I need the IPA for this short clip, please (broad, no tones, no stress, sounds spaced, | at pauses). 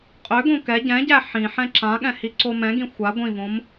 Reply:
qʼ ʏ ɡ õ k ɛ ɟ ɛ̃ ɟ æ ħ ĩ ħ ɛ̃ ǁ ã ɠ ɛ̃ h i ǀ o m ɛ̃ ɡ ĩ xʷ a ɡʷ ĩ v õ m